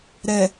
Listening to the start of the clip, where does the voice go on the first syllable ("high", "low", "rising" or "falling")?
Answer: low